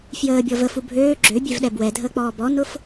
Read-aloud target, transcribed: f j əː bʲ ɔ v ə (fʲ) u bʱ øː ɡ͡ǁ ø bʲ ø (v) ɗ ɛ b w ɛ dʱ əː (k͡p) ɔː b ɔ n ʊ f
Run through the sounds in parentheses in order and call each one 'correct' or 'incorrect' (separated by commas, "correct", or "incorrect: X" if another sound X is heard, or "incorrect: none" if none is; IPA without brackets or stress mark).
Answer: incorrect: f, correct, correct